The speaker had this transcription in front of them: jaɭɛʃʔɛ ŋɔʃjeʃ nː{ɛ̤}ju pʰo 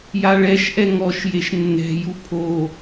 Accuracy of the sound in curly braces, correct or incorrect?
correct